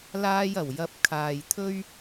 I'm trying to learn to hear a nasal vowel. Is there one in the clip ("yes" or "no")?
no